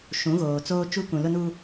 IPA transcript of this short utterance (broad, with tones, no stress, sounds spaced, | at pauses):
ʃ ũ˨˦ ɣ oː˨ t͡s oː˦ t͡ʃ u˦ k ũ˨ l ʊ˦ n uː˦